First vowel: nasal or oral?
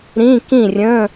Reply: nasal